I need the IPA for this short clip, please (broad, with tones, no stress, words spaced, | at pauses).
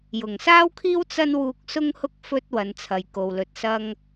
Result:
jʊ˨˩ŋsaː˥wkʰiː˥w t͡sɐ˥n wuː˧k̚sʊ˥ŋhʊ˥k̚ fɵ˧t̚ wɐ˨˧nt͡sʰɐ˨jko˨wlɵ˧t̚ sɐ˥ŋ